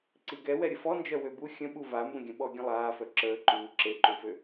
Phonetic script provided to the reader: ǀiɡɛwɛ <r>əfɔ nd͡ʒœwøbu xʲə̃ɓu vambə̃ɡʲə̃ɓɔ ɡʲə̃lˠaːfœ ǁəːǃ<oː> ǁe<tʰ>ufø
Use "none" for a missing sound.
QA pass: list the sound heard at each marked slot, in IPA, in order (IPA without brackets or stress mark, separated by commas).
ɾʲ, uː, ǃ